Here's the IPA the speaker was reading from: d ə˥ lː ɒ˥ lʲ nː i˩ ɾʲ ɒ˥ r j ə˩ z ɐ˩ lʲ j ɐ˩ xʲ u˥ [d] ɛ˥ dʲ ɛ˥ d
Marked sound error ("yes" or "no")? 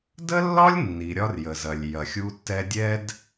yes